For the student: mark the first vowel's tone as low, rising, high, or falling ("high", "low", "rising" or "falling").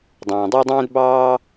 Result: low